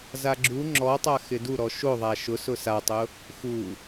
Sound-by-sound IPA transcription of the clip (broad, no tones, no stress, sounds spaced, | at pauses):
z a ɡ͡ǁ u ŋ͡ǁ ɔ tˤ a x ɪ d u ɾ ɔ ʃ o ðˤ a ʃ ʊ s ʊ s a tˤ ʊ | x u